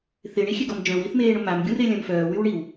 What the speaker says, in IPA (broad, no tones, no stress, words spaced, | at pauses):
θɪɳixʲeɡɔm d͡ʒœ̃wiθmeːɳo mamɡʲũrelʲœ̃m fœːwywɳiw